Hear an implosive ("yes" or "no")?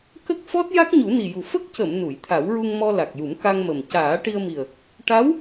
no